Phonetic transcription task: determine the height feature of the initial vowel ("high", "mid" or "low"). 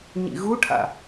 high